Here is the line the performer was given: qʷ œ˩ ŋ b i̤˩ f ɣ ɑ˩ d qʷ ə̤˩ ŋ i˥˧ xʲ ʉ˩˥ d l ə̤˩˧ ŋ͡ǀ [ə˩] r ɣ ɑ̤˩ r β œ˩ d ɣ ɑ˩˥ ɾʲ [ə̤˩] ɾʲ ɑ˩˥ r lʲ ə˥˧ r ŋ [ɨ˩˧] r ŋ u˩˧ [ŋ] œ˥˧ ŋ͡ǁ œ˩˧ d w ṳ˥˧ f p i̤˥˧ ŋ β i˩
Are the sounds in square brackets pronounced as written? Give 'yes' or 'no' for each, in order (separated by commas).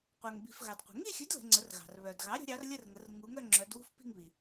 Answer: no, no, no, yes